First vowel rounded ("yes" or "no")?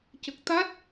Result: no